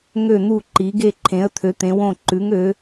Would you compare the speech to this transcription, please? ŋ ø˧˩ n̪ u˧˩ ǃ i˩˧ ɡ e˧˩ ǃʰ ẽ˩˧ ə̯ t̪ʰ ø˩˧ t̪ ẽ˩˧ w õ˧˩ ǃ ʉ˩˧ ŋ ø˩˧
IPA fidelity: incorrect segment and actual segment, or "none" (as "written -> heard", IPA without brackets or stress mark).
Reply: none